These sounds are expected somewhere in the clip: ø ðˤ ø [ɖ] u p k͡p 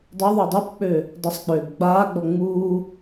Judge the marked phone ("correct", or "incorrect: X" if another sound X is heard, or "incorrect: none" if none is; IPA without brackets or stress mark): incorrect: dˤ